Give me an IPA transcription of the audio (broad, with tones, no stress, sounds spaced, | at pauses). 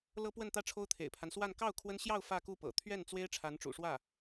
l ɤ˥ p w ə˥˧ n t̪ ä˥˩ ʈ͡ʂʰ o˥ ʊ̯ t̪ʰ ḛ˨˩ ɪ̯ pʰ a˦ n s w a˥˧ n k ɑ˥˩ ʊ̯ kʰ w ə˥ n ɕ j ɑ˥˧ ʊ̯ f ä˥˧ k u˥˩ p ɤ̰˨˩ t̪ʰ ɥ ɛ˥˩ n t͡s w e˥ ɪ̯ ʈ͡ʂʰ a˧˥ n ʈ͡ʂ ṵ˨˩ ʂ w ä˥˩